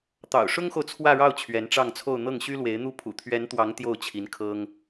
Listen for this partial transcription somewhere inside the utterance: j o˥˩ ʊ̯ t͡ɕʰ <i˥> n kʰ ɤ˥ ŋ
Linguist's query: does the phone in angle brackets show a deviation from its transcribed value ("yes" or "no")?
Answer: yes